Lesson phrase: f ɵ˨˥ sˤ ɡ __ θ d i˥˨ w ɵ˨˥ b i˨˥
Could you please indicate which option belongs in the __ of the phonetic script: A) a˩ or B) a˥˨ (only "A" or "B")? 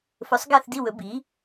B